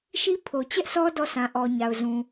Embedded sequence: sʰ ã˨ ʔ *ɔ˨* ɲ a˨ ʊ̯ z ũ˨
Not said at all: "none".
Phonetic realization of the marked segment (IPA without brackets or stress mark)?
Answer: ɔ˨